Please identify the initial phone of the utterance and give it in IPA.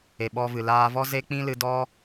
e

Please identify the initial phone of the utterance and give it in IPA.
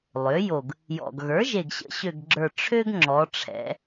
lˠ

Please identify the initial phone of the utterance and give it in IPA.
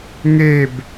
ŋ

